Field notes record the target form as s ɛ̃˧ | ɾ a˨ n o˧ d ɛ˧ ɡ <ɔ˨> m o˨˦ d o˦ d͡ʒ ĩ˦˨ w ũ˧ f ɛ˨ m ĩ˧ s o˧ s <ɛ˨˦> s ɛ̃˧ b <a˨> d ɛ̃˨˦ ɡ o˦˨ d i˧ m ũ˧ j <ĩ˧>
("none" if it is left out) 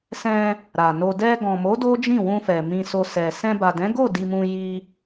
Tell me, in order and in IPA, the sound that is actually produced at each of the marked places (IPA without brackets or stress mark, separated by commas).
ɔ̃˨, ɛ˨, a˨, i˧